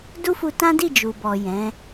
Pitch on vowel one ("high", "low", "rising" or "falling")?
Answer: high